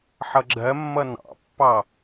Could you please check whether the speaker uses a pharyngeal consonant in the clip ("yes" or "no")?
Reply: yes